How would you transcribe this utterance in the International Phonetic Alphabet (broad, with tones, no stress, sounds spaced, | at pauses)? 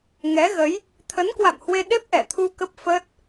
ŋ ɛ˨˦ ɣ ə˨˦ j | t̪ʰ ə˨˦ n k w a̰˧˨ m h w e˧ ɗ e˦˥ p̚ ʔ ɛ˧˩ t̪ʰ u˧ k ə˦˥ p̚ f ə˦˥ t̚